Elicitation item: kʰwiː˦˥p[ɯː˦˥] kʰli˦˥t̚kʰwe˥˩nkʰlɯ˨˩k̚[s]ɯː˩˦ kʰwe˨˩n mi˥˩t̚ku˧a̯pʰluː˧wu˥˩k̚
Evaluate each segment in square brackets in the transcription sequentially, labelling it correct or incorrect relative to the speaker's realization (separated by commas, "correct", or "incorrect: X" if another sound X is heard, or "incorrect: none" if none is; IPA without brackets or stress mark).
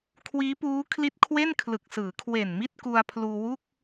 incorrect: uː˦˥, correct